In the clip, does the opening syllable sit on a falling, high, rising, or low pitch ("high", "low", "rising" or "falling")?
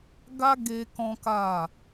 high